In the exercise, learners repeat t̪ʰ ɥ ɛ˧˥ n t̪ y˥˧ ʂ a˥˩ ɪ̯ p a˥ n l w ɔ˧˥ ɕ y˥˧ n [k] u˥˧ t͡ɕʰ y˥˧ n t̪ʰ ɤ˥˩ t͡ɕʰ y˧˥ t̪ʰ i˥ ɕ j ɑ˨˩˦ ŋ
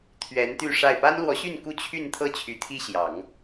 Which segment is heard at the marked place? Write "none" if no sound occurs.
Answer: k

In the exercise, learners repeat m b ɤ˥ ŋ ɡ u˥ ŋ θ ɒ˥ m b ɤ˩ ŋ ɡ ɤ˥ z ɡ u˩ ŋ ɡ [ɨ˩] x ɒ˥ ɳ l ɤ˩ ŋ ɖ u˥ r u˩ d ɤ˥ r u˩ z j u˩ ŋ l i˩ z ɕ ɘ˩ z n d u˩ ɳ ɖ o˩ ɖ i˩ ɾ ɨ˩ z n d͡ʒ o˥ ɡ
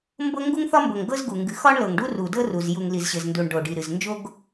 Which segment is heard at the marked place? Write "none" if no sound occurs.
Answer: ɨ˩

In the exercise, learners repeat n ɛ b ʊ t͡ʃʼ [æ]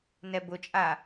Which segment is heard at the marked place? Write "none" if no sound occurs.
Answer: a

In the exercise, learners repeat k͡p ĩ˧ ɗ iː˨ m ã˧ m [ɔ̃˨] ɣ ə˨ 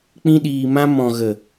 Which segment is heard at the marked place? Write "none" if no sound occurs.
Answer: ɔ̃˨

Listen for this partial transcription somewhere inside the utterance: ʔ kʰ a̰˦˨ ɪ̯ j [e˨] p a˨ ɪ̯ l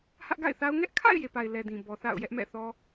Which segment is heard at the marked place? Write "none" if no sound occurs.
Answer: e˨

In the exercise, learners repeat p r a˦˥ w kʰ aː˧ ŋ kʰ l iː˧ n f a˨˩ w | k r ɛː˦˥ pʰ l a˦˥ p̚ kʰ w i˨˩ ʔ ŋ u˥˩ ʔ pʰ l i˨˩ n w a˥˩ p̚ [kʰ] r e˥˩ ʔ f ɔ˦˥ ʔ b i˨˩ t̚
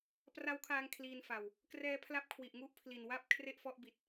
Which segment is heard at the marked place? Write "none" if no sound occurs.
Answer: kʰ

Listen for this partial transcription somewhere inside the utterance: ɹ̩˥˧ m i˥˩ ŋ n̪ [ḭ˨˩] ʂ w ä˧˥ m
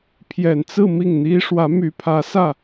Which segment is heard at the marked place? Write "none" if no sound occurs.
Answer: i˥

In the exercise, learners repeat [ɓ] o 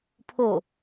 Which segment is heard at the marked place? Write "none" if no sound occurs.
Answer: pʰ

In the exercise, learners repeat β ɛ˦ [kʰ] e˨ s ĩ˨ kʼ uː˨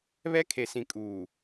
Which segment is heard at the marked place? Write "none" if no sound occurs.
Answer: kʰ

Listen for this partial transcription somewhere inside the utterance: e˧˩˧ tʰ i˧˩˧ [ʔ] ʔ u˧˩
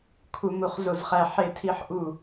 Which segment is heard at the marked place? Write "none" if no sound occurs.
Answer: ħ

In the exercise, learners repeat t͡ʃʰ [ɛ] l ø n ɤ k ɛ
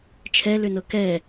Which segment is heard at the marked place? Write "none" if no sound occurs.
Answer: ɛ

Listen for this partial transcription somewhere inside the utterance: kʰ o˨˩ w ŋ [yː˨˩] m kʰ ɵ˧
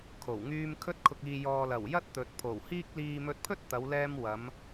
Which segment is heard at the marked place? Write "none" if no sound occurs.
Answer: yː˧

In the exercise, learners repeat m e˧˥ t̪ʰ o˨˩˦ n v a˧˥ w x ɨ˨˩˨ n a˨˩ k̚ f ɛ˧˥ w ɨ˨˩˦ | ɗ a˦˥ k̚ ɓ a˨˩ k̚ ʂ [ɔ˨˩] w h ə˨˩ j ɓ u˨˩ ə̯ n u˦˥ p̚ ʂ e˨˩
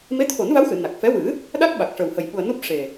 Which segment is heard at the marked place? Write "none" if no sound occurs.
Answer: ə˨˩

